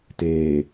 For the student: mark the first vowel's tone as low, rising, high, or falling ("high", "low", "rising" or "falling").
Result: low